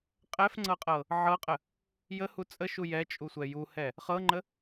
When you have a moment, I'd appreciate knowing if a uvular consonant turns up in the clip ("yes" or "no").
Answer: yes